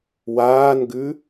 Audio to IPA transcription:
waːnɡʉ

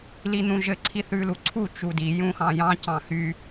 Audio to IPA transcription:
lin̪ũʒɘ ǀʰiθʉluǀʰu t͡ʃudi jũxɑ̃jɑ̃ cɑ̃xy

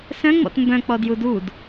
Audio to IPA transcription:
sœ̃ŋ͡mɔ̰t mbœ̃k͡pɔ djudud

